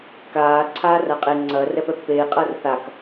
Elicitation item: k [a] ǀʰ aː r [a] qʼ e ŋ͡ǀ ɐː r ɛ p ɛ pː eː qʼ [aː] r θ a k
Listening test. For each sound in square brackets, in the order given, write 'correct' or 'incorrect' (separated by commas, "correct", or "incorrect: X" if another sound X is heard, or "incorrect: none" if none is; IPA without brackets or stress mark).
incorrect: aː, correct, incorrect: ɐː